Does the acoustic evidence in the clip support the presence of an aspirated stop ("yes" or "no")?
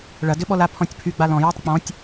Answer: yes